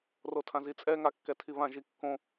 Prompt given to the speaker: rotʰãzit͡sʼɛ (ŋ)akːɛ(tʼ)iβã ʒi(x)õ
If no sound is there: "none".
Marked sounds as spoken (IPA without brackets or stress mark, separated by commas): ŋ, tʰ, kː